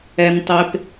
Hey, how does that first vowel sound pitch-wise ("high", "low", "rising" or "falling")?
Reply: low